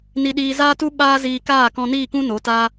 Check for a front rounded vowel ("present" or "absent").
absent